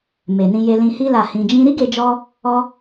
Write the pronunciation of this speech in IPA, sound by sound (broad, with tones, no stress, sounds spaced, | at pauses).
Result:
m e˨ n ĩ˧ j e˧ l ĩ˧ h i˧ l a˨ h ĩ˨ d͡ʒ ĩ˧ ɾ i˦ ɡ e˧ d͡ʒ ɔ˧ | ɔ˧